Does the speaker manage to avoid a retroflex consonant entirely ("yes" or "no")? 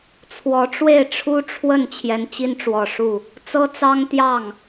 no